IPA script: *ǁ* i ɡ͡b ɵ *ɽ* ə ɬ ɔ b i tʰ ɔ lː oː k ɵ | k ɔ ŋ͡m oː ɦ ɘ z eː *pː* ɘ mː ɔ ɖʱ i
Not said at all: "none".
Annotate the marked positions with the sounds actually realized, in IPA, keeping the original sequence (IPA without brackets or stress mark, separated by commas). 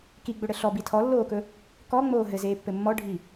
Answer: k, ɽ, pː